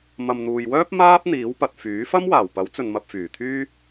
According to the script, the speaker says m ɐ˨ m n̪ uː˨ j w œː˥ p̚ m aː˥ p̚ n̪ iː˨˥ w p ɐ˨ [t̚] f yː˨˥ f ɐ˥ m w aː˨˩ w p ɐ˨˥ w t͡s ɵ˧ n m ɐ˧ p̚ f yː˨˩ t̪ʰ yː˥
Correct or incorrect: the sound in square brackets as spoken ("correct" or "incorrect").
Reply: correct